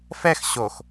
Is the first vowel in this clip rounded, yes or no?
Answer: no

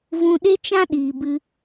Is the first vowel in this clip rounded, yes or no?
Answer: yes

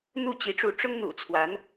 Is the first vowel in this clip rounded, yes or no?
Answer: yes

